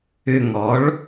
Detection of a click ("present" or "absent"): absent